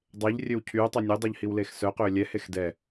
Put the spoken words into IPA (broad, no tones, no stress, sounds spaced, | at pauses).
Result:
dˤ e ʎ rʲ ø w cʰ yː tˤ y nʲ ø dˤ œ ʎ h i w l eː x s œ q øː lʲ ɛ h e x d ɛ